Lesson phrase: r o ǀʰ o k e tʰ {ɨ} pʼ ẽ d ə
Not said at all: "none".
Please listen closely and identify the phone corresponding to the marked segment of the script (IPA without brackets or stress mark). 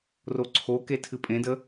ɨ